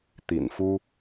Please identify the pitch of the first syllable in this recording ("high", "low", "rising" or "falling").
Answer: low